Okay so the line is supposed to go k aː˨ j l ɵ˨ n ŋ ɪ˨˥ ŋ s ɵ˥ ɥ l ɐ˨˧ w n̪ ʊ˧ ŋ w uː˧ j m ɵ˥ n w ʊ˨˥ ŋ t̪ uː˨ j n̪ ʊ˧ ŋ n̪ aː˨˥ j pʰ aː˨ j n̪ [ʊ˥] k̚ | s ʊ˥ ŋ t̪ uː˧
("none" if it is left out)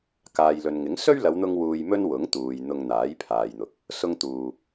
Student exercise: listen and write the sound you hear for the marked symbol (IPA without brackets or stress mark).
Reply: ʊ˨